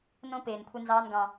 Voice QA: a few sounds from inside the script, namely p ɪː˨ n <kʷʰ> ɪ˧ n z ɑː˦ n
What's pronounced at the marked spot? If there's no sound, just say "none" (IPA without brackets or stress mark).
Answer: kʷʰ